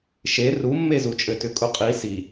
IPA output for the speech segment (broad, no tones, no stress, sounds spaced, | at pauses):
ʃ e r u mː e z u t͡ʃʼ ɘ t ʏ kʼ u qʼ i s i